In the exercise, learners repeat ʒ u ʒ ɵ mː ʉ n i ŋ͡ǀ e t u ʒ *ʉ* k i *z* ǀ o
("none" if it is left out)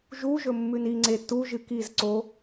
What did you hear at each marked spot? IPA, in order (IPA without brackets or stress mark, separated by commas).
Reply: ɨ, z